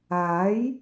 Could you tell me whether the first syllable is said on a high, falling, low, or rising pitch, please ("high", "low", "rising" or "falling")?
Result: rising